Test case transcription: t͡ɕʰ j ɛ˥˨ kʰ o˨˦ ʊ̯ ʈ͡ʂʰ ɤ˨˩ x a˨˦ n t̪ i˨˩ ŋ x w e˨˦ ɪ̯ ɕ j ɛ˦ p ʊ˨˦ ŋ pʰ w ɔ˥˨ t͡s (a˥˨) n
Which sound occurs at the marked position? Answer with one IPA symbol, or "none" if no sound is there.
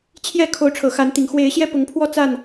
a˥˨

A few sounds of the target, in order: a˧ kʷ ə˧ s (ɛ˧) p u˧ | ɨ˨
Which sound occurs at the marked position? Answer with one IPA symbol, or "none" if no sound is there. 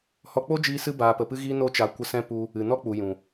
ɛ̃˧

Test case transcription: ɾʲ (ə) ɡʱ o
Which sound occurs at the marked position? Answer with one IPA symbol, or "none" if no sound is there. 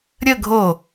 ə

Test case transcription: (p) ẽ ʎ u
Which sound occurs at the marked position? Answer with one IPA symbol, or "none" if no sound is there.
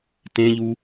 t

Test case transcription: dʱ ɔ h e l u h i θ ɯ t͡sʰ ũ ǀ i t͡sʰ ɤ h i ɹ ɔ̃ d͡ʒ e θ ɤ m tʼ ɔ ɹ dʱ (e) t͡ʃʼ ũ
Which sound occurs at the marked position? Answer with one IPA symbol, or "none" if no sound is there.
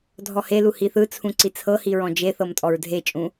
e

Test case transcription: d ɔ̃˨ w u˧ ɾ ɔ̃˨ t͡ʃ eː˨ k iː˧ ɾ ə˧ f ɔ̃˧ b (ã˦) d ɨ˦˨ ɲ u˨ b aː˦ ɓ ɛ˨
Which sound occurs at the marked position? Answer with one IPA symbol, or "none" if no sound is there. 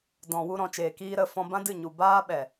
ã˦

